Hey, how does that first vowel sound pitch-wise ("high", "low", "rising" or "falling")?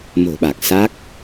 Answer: low